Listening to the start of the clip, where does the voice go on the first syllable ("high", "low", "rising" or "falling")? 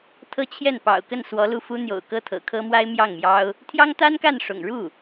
high